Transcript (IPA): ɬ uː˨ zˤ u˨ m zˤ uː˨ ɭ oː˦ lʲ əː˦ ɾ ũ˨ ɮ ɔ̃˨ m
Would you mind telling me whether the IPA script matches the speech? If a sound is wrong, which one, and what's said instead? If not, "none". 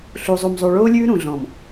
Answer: əː˦ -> ʉː˦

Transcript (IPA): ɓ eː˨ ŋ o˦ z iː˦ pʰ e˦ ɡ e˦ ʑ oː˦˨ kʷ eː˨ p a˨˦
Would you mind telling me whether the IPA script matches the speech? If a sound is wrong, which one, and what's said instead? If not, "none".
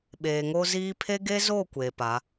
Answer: ʑ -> z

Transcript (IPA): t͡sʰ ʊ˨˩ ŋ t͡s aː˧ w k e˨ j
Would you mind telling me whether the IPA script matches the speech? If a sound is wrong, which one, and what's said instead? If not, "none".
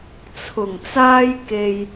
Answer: w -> j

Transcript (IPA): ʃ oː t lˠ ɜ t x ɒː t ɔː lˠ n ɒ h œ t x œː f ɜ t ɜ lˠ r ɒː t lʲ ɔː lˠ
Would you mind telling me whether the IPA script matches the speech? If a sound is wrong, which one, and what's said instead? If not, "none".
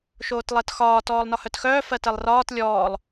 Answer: none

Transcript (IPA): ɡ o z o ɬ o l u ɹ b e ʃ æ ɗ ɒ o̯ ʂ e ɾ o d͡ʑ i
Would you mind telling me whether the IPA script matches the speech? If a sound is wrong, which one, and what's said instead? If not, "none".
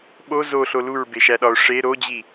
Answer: ɡ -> ɓ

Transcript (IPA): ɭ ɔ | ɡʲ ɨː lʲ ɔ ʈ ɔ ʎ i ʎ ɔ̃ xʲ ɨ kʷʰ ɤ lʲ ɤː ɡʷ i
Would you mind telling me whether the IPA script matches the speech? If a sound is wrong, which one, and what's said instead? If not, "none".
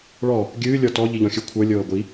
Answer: ʈ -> t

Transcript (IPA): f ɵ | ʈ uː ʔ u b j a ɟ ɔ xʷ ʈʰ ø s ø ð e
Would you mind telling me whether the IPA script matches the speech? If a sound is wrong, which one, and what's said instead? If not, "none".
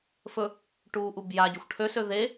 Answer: none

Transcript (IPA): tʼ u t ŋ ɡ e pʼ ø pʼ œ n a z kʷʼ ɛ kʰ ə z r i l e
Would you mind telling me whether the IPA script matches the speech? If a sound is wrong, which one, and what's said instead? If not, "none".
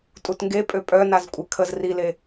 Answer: none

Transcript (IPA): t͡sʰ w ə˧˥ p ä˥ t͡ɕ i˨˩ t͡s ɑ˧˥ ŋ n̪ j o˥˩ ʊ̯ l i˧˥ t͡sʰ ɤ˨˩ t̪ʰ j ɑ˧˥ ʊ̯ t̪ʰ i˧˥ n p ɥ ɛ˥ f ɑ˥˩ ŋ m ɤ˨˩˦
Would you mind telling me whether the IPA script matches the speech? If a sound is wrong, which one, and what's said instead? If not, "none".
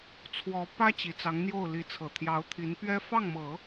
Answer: ə˧˥ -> ɔ˧˥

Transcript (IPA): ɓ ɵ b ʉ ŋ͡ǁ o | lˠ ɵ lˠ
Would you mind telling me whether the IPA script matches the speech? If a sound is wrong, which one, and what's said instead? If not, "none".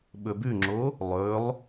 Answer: none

